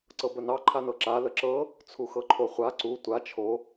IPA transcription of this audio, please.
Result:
ǀɤbənɑ ǃʰanɤǁa ləǁɤ | t͡sʰuxɤǃʰoχʷa ǀu tʷa t͡ʃʰo

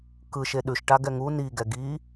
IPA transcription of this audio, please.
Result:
kɯʃe ɗʉʃʈaɡɛ ŋu niɡɛ ɡi

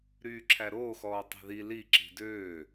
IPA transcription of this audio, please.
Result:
ɾyːǁʰæɾoːxɔː tˤi̤ði li ǁi̤døː

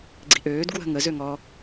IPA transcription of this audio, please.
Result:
ɡ͡ǀi̤ʔøːd ɡwə̤ ŋə zøŋɔ

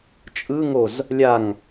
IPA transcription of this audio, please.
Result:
t͡ʃʼɯŋoz | lʲaŋ

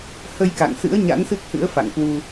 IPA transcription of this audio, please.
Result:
hə˧jka̰˧˨ŋsɨ̰˧˥ə̯ ɲa̰˧˥nsɨ˦˥k̚hɨ̰˧˥ə̯ fa̰˧˨ŋkwu˧

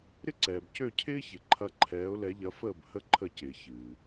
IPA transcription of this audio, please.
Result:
ɾɪ˥ ǀɛː˩b cø˥˩cʰɪː˥çɪ˩ǃʰɐ˧ ǃʰɛː˩˥ʊ̯lɛ˩˥ʎɐ˩˥ fəː˥˩bhə˥˩ ǃʰə˥˩cɪː˩ çɨː˩

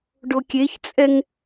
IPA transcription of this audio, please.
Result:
ɖokʲeçt͡sʼɛŋ

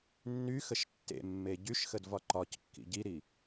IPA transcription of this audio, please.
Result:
nːyxəʃ tːḛmːe ɟyʃxədvɒ ǃɒckːḭ ɟiɾi

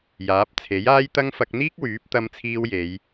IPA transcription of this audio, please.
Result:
jaː˨˥p̚t͡sʰe˨˥jaː˥jt̪ɐ˥ŋ fɐ˧k̚n̪iː˥k̚wyː˨˥p̚ t̪ɐ˧mt͡sʰiː˧wje˨˧j

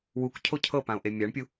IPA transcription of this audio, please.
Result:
wukcʰo cʰɤpão̯ʔe mʲaɳpʲu

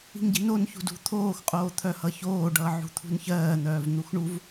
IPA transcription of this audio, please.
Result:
i̤ŋɟi̤nonçṳd ṳt̪ʰoːxqʼoː t̪ʰœhʌçoːɖʌː ʕṳt̪ʰṳnçɜːn̪œːv n̪uxɳuv

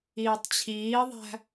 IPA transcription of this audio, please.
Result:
iːtˤt͡ɕʰiːðˤæ̤

